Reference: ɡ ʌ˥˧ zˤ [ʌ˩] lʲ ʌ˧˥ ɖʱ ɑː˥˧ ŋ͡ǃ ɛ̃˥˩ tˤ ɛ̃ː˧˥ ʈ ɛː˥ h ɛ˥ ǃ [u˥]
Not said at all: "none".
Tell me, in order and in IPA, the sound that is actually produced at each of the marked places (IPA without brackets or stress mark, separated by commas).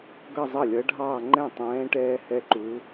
ʌ˥˩, u˧˥